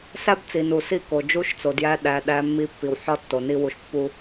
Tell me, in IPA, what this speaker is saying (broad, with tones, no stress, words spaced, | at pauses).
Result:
sæ˦bt͡si˨nu˨ si˦˨ko˨d͡ʒu˦ʃt͡so˨ djæ˦ ɗæ˨ ɗæ˦mːi˦pːi˨w ħɒ˦tːo˨ni˦ wu˨ʃpːu˦